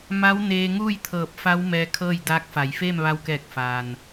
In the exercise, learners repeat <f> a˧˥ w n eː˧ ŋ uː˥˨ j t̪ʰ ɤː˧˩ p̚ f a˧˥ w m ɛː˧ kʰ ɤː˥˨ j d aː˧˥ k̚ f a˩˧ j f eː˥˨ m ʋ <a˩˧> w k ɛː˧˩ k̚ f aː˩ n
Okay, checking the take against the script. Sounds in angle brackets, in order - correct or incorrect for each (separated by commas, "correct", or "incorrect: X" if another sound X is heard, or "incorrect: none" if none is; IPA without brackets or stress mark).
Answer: incorrect: m, incorrect: a˧